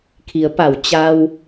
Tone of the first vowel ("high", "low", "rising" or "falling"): low